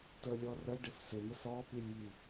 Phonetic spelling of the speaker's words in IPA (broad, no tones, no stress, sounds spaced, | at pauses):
t ə lʲ ɔ r ə ɖ ɪ f s ɪ n̪ ə s ɔ p i lʲ j i